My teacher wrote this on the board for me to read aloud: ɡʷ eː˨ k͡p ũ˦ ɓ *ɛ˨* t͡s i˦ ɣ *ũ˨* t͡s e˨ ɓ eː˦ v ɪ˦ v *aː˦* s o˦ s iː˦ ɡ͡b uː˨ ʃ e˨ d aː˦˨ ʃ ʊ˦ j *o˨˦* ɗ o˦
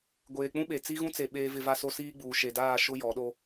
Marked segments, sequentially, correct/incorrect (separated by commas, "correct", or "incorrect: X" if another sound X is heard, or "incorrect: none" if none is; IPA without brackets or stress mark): incorrect: e˨, incorrect: ũ˦, incorrect: a˦, incorrect: ɔ˨˦